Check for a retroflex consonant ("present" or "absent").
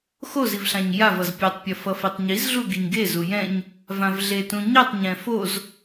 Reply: absent